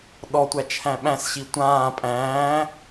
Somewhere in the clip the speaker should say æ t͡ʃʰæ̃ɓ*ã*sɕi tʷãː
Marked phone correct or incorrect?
incorrect